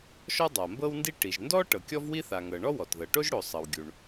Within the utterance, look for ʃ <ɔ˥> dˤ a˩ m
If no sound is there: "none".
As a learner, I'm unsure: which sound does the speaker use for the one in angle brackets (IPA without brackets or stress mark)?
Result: ɔ˥